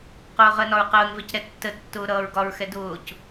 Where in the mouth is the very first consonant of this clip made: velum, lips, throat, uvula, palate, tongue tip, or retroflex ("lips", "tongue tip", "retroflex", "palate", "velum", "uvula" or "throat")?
uvula